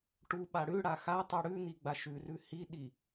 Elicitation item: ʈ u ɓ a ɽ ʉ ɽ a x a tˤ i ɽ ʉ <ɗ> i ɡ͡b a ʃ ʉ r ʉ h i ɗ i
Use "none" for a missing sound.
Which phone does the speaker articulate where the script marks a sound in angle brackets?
n̪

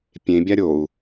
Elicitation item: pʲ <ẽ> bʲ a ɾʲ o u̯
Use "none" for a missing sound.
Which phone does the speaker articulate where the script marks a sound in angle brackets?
ẽ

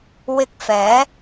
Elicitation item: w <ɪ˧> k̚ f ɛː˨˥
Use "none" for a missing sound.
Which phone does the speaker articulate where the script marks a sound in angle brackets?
ɪ˧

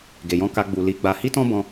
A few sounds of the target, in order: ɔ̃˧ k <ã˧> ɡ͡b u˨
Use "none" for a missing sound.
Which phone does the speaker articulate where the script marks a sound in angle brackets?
a˧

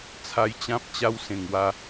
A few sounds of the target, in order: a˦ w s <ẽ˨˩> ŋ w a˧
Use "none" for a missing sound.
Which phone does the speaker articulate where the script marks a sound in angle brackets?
ẽ˨˩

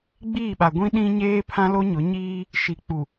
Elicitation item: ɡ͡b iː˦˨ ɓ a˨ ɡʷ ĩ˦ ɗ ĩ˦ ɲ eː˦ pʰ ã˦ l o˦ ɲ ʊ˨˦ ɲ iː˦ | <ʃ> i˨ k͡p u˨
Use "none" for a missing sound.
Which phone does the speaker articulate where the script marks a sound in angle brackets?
ʃ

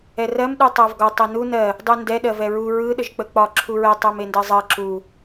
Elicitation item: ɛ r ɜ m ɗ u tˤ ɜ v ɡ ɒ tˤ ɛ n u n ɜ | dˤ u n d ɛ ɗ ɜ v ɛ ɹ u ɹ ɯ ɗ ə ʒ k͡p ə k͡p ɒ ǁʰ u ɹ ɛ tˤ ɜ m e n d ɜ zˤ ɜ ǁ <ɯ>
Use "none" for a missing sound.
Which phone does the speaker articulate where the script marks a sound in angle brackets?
u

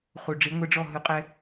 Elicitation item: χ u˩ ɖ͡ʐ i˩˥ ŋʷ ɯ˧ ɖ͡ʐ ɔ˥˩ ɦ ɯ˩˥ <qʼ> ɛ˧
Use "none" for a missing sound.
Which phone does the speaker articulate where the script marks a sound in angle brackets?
qʼ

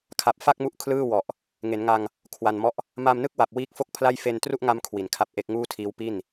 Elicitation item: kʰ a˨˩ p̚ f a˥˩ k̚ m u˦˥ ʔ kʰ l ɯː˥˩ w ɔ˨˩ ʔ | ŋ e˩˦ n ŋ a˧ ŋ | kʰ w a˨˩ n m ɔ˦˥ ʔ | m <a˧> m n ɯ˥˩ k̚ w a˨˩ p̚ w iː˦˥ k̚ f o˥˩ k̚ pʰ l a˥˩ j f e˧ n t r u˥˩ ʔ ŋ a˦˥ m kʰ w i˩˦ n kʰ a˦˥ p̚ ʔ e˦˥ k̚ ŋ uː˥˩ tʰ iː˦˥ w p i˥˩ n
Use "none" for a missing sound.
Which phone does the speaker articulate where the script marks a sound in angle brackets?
a˧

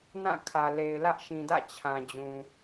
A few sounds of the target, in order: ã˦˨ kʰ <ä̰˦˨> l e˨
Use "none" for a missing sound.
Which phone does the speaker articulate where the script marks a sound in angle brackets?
ä˨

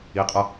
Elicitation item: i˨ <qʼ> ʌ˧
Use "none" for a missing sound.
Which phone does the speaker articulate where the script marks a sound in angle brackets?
qʼ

